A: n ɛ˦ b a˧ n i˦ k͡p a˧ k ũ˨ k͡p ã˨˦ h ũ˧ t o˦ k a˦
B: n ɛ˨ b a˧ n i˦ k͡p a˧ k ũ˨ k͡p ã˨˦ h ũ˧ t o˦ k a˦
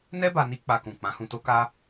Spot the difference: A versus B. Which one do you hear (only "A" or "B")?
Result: A